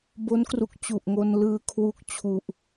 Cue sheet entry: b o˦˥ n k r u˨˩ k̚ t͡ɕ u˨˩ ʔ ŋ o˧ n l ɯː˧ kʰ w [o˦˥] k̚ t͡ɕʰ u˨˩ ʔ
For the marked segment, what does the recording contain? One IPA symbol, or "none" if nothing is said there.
u˦˥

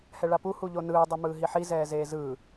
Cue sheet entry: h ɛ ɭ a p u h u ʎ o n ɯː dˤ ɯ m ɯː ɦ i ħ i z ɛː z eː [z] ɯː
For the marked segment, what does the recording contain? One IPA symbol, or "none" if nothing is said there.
z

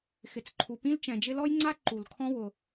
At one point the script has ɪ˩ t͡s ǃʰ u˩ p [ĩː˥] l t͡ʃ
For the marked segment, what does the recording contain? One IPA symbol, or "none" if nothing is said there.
ĩ˥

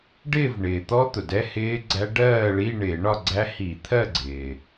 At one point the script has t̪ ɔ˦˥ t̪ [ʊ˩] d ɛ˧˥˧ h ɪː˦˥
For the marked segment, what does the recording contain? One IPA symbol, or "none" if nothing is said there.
ʊ˩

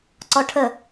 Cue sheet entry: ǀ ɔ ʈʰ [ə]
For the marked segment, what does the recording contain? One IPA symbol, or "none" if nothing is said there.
ə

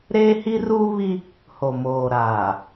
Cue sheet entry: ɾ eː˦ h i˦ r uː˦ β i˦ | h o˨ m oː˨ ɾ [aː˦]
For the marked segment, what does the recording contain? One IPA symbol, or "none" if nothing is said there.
aː˨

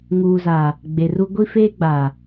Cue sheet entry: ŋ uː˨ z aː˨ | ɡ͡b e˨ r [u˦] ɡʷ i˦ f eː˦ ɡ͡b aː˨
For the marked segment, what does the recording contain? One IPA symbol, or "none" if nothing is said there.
u˦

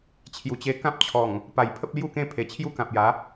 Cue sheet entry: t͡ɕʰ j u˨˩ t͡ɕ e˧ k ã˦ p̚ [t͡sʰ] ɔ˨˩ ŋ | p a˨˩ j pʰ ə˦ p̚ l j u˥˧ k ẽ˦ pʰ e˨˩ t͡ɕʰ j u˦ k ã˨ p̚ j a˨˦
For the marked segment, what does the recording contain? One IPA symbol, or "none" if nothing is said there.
t͡ɕʰ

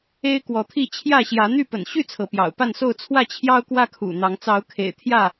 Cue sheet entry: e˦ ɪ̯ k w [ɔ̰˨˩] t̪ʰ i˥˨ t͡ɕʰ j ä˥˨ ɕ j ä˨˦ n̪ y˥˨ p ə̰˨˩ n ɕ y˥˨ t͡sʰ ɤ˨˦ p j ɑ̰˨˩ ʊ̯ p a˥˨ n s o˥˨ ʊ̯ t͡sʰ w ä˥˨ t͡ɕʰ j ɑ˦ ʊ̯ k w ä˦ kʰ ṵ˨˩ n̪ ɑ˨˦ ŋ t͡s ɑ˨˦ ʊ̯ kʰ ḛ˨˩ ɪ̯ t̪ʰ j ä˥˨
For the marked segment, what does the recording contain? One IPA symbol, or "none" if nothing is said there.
ɔ˨˦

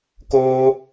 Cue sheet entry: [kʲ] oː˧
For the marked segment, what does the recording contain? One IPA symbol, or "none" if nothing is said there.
k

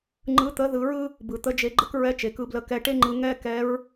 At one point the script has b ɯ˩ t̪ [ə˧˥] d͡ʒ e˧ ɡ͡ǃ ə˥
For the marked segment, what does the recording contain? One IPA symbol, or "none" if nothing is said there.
ə˧˥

